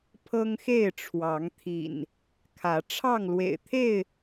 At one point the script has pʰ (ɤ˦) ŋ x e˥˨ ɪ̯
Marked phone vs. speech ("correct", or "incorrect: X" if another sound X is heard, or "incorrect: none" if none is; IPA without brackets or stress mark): correct